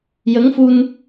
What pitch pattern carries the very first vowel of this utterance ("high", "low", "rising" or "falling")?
rising